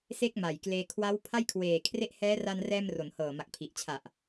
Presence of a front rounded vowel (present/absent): absent